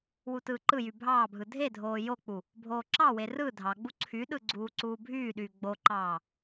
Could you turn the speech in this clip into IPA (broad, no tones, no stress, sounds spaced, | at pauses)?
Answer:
w u t ɯː ǃ ɯ j y bʱ ɑː bʱ ɯ dʱ e dʱ oː j o k͡p u | bʱ oː ǁ ɑ w e r ɯ dʱ ɑ ɡ͡b u ǀʰ y ɗ ɯ ɡ͡ǀ uː ǀ uː bʱ yː ɗ yː ɡ͡b o ǃ ɑː